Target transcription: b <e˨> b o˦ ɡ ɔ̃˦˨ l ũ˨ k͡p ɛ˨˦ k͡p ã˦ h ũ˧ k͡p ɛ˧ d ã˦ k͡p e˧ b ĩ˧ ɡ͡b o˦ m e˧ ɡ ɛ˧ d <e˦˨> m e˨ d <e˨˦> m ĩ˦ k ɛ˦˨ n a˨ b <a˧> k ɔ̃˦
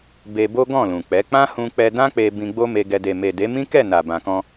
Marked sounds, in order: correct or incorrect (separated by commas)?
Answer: incorrect, incorrect, correct, incorrect